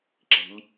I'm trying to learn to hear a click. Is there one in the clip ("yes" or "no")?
yes